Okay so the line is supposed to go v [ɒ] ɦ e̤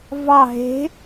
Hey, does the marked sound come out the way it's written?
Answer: no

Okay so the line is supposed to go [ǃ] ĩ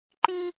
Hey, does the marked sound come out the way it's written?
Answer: yes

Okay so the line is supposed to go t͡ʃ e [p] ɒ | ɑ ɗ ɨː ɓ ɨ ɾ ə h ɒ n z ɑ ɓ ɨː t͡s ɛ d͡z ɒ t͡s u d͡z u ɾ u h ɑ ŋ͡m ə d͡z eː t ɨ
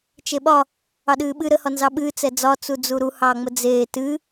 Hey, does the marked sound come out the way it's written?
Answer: no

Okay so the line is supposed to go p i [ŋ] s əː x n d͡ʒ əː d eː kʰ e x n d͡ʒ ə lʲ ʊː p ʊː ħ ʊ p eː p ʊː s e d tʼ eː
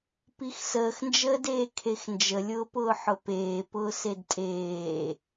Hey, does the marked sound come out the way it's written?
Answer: no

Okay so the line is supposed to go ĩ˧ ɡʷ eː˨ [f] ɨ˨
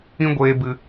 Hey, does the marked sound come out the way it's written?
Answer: no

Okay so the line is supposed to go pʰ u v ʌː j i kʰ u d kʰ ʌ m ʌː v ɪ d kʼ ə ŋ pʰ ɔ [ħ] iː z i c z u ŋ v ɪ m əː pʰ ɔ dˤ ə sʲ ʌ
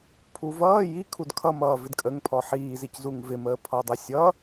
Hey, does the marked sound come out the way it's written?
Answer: yes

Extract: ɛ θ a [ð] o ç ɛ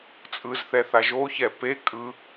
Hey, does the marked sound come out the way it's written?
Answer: no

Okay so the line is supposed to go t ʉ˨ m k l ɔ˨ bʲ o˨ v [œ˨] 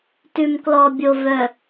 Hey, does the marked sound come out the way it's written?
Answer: yes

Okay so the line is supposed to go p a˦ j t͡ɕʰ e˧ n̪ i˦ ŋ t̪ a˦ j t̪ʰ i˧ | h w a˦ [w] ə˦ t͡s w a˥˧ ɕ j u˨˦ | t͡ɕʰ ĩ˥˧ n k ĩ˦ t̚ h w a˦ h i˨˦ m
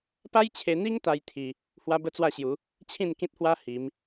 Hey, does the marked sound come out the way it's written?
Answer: no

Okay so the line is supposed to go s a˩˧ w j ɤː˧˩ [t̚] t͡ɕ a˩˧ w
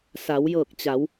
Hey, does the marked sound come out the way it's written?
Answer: no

